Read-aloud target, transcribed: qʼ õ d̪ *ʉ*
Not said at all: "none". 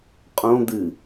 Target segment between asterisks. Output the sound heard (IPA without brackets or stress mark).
ɨ